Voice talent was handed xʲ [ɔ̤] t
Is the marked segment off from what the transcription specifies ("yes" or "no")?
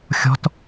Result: no